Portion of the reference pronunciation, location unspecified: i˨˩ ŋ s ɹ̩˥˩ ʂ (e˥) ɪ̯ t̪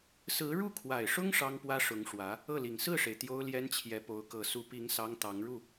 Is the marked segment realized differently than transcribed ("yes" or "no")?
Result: yes